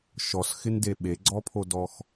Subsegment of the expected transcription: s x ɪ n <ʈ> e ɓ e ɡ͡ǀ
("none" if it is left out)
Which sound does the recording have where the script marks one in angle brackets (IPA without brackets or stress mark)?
d